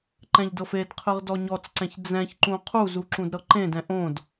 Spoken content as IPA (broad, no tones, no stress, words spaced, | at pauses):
ǃɛ̃ʎdɤfedqʰɯʁ dɔɲɔt͡sǀɛ̃ç d͡zɛ̃çǃũ qʰuzu ǁũdɾɤǃẽdɛ̃ ʔõd